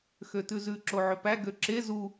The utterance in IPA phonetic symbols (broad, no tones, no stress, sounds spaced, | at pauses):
x ø t ʉ z ʉ ǁ o ʕ ø p æ ɡ ø ǁ e z u